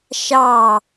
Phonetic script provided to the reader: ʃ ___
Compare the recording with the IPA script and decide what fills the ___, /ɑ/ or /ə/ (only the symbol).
ɑ